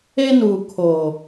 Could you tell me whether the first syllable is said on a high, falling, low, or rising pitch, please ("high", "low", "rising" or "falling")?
high